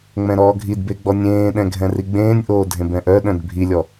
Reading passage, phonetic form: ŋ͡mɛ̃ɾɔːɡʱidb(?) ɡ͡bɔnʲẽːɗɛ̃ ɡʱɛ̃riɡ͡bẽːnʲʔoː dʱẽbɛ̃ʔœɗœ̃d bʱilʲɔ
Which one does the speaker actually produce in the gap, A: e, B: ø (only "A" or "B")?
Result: A